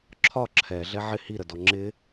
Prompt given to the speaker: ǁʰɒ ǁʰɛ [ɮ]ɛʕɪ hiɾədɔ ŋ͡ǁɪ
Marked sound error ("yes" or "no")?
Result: no